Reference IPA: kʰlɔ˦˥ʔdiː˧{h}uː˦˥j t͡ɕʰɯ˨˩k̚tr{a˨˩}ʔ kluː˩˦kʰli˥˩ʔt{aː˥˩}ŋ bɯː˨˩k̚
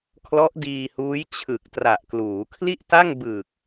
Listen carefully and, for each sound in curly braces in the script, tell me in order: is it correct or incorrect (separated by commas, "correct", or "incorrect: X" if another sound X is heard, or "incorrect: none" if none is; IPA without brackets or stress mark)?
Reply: correct, correct, incorrect: a˥˩